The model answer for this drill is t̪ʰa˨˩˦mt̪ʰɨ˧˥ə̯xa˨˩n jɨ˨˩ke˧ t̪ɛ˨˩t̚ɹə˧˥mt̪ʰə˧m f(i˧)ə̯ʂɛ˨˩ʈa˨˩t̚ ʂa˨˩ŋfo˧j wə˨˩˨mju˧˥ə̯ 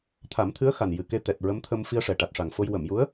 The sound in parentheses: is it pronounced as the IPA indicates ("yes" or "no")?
yes